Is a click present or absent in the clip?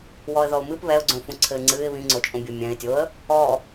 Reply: present